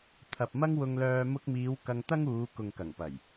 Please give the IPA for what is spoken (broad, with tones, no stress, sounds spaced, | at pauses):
t̪ʰ ɐ˨ p̚ m ɐ˥ ŋ w ʊ˧ ŋ l œː˧ m ʊ˧ k̚ m iː˨˧ w k ɐ˧ ŋ t̪ ɐ˥ ŋ uː˨˧ k ʊ˨ ŋ k ɐ˨˩ ŋ p ɐ˨˩ j